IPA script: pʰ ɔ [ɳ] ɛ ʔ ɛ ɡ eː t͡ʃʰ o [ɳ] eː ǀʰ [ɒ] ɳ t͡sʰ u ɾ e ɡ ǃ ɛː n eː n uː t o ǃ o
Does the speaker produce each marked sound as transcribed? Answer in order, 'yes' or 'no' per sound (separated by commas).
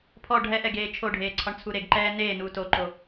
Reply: no, no, yes